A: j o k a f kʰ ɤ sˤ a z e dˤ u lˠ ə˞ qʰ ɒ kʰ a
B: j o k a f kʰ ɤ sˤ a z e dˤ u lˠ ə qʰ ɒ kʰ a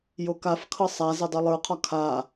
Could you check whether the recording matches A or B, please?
A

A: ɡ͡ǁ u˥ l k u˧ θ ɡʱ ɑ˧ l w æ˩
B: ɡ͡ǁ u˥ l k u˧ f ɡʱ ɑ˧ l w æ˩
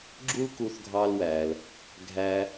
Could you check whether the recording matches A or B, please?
A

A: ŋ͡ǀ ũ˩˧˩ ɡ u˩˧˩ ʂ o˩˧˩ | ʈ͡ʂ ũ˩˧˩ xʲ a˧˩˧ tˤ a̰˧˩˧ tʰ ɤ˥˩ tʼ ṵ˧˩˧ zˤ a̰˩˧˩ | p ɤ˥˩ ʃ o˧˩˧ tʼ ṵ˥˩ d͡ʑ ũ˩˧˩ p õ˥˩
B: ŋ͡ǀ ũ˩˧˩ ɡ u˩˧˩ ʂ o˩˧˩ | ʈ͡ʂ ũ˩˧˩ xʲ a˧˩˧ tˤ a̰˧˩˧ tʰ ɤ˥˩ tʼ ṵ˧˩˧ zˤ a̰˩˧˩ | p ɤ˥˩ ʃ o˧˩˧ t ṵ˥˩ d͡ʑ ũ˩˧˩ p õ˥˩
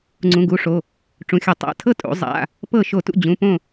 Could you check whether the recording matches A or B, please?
B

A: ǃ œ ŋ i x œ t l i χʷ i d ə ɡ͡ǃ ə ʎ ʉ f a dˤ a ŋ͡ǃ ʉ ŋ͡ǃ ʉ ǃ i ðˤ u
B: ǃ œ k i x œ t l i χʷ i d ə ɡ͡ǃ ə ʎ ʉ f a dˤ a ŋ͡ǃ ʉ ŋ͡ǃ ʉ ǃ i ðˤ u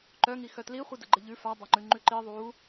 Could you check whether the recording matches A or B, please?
A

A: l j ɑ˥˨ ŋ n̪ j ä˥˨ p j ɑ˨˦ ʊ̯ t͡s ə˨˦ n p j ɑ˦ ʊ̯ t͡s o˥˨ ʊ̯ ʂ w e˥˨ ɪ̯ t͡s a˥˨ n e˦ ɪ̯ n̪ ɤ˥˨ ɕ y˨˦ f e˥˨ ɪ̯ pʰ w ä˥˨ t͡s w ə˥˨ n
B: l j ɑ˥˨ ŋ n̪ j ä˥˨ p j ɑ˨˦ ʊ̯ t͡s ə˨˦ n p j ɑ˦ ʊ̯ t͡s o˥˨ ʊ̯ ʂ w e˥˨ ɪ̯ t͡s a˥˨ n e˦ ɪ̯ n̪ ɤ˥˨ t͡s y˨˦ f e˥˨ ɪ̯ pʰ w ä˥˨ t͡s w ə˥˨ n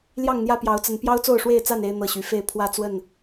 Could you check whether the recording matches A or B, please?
A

